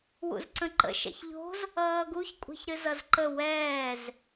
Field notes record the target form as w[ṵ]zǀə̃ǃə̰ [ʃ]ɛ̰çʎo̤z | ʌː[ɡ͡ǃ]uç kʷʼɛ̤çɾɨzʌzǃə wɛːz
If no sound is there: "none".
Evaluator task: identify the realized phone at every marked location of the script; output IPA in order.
ṵ, ʃ, ɡ

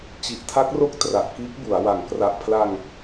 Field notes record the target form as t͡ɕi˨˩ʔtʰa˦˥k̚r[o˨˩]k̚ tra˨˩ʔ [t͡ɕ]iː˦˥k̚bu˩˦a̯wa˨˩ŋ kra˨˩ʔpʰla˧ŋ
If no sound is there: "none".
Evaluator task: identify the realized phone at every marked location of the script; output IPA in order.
o˦˥, k

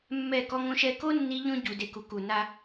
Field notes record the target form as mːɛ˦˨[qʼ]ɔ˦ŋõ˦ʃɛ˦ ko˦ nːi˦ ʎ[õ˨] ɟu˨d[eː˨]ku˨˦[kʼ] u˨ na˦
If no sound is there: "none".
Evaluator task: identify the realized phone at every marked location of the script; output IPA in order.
k, õ˦, e˨, k

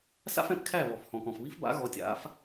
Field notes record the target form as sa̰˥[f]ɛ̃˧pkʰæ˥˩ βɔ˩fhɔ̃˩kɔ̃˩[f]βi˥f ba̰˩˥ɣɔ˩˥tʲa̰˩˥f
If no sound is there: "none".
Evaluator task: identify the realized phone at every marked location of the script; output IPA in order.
f, f

